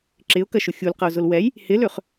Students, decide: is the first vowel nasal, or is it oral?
oral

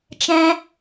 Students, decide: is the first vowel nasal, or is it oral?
nasal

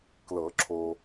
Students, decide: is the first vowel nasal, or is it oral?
oral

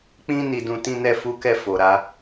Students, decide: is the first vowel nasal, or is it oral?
nasal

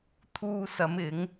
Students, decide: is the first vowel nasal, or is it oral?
oral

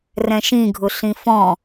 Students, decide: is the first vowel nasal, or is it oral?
nasal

